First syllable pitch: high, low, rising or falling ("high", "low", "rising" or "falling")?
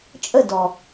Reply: falling